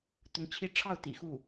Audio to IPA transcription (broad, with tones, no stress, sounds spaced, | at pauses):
t̪ ʊ˧˥ ŋ t͡ɕʰ i˧˥ ʈ͡ʂʰ ɑ˥˩ ʊ̯ t̪ ḭ˨˩ x u˥˩